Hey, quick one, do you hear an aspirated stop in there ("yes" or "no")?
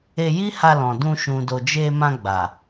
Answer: no